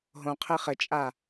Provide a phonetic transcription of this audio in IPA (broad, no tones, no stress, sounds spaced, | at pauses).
ɦ õ qʰ ɘ χ ɘ t͡ʃʼ a